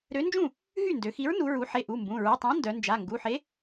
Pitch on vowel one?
rising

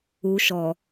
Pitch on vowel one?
low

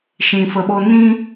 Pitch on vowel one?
low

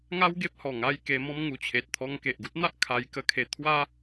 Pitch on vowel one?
high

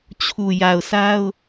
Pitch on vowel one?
low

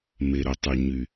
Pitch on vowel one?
low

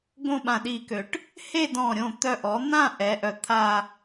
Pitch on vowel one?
falling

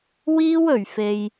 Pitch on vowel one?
high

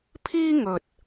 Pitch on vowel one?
high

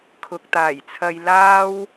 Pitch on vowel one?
low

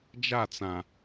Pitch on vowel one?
falling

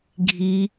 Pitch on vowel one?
high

